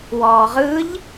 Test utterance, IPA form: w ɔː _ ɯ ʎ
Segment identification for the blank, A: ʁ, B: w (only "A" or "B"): A